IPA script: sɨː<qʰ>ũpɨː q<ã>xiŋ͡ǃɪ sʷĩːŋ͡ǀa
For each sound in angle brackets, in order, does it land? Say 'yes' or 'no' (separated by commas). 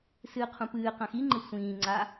yes, yes